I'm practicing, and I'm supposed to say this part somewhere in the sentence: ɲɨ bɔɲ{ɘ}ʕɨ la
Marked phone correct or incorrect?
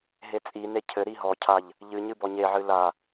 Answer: incorrect